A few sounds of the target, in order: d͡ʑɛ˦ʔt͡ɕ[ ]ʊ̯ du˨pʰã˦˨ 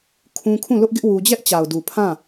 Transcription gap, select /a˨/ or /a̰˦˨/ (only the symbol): a˨